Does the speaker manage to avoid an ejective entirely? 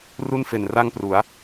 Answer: yes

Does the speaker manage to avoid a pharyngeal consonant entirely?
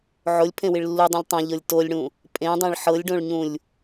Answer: no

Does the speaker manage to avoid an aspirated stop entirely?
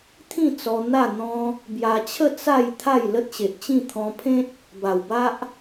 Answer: no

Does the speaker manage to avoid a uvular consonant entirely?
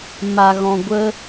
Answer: yes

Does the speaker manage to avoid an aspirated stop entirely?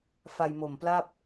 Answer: yes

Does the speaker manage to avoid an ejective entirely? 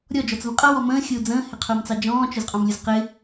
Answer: no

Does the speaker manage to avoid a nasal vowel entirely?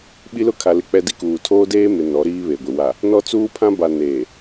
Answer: no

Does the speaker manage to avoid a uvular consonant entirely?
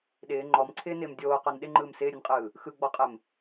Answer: no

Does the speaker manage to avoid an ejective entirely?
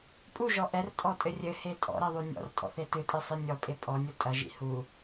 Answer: no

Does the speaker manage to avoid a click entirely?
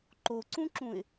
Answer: no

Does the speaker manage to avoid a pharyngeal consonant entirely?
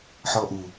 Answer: no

